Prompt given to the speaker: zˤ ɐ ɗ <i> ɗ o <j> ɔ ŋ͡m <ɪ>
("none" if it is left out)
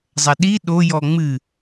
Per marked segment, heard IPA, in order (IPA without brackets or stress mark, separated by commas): i, j, ɨ